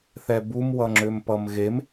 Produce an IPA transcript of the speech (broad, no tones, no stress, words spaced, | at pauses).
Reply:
θɛbum wʌŋ͡ǁʏmpʌmɣem